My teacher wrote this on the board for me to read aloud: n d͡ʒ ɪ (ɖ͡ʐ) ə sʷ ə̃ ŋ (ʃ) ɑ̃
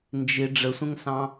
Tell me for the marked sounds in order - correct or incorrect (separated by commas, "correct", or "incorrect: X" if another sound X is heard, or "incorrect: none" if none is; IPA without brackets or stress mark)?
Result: correct, incorrect: s